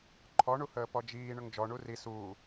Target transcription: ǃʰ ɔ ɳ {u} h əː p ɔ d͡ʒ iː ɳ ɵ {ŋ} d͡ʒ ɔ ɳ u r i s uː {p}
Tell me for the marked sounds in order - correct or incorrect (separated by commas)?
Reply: correct, correct, incorrect